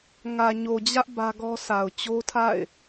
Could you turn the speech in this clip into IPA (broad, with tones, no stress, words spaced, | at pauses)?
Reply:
ŋä˨ɲo˨d͡ʑä˦ʔ bä˦ɡɔ˦ sʰa˨ʊ̯t͡ɕo˦tʰa̰˦˨ɪ̯